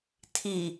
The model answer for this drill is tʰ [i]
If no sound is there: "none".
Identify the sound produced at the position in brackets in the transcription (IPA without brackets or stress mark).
i